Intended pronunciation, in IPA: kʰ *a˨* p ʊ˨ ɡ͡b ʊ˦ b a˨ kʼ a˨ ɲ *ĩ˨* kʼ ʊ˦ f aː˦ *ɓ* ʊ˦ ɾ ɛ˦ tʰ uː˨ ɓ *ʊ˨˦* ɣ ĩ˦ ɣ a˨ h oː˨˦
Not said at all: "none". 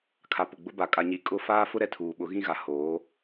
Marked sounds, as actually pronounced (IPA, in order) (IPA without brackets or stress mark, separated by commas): a˨, i˨, f, ʊ˨˦